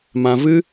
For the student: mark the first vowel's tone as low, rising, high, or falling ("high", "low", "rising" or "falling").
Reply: low